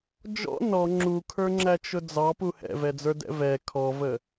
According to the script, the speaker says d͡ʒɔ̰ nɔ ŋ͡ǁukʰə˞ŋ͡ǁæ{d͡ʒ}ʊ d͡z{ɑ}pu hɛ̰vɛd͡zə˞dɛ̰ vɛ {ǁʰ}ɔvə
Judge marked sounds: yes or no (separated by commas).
no, yes, no